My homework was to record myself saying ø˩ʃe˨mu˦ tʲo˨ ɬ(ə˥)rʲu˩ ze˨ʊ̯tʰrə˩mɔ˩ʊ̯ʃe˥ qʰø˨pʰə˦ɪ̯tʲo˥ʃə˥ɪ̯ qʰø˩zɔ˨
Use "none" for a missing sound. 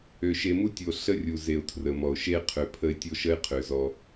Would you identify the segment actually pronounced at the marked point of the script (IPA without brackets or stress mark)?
ə˦